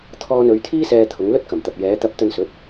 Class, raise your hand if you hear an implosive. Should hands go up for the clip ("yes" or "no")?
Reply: no